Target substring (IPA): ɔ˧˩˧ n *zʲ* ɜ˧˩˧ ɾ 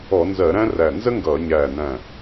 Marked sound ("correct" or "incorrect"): incorrect